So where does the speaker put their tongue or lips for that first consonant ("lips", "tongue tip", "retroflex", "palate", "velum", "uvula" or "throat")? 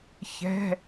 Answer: palate